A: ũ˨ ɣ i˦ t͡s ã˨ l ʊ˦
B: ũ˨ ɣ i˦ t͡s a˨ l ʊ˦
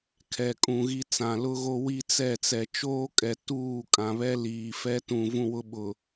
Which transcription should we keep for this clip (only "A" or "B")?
A